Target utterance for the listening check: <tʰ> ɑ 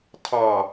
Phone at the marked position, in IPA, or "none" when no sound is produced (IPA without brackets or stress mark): tʰ